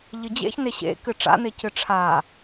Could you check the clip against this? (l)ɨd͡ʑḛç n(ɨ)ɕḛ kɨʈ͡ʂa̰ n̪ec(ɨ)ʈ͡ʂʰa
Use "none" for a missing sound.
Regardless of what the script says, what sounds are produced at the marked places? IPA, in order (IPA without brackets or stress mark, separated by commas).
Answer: ʎ, e, ɨ